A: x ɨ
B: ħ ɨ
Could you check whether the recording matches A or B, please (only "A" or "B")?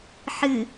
B